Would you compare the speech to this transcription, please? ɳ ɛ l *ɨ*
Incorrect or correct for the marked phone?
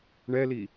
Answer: incorrect: i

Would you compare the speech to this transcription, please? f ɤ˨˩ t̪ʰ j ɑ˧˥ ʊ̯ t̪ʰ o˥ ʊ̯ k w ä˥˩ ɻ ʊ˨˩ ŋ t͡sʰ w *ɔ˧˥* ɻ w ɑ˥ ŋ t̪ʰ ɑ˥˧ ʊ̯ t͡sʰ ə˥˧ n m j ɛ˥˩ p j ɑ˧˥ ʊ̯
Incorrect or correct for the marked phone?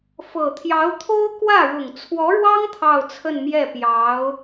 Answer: correct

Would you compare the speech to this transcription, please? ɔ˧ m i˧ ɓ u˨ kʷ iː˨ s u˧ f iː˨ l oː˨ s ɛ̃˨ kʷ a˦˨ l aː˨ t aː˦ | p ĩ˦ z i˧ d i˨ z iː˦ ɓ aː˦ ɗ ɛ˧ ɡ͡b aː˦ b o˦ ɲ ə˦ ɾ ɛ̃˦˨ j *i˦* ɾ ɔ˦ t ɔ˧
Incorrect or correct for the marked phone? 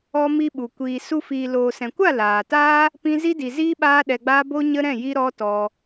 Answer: correct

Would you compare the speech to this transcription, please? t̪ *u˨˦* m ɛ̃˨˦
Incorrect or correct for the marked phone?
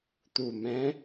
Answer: incorrect: u˨˩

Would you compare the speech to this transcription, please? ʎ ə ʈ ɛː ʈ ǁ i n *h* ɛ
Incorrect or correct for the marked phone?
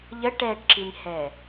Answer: correct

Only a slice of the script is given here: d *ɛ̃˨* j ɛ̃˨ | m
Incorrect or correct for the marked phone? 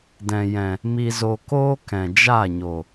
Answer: correct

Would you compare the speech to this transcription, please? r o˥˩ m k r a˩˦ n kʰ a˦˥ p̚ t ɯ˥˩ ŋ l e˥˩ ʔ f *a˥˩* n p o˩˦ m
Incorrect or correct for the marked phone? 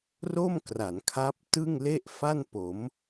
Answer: correct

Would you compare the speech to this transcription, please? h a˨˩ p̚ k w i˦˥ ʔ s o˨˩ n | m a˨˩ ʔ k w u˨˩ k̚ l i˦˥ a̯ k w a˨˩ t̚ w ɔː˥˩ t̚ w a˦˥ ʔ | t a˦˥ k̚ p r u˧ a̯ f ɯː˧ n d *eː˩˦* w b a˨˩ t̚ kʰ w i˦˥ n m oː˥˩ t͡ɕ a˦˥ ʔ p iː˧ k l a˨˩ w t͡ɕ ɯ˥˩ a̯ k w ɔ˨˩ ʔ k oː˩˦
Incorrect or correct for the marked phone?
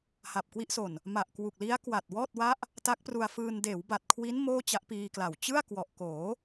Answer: correct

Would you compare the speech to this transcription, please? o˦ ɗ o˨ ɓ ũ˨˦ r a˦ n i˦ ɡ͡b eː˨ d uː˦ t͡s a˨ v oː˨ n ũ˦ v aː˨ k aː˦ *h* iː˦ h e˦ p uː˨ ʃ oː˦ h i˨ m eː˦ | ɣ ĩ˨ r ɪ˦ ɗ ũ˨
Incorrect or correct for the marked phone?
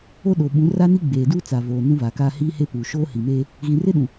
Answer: correct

